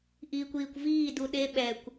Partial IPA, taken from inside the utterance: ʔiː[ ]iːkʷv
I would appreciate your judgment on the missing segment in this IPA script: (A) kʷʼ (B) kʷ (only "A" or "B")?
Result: B